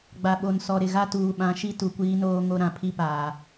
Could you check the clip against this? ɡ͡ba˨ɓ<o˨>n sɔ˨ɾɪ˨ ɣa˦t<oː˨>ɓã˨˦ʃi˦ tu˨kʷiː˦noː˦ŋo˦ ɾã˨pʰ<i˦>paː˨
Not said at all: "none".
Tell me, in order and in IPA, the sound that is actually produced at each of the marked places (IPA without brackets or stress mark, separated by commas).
o˨, uː˨, i˦